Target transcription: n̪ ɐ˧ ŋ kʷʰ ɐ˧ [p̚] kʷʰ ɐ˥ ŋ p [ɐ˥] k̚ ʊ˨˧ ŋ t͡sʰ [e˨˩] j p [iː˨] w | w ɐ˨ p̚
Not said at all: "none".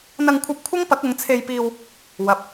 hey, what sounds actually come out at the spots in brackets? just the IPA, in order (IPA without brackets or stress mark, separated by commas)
p̚, ɐ˨˥, e˧, iː˧